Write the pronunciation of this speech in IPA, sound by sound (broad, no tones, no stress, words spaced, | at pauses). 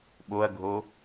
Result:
ɓoɐ̯ɡʱo